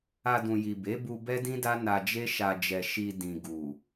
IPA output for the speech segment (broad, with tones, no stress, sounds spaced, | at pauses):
a˧ d ũ˨ j i˨ b e˨˦ b u˧ b ɛ˦ d ĩ˦ d a˦ n a˧ d͡ʒ e˦ ʃ a˧ d͡ʒ ɛ˨ ʃ i˨ d ĩ˨ ɡ u˨